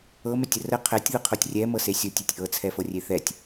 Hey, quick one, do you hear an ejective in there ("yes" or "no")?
no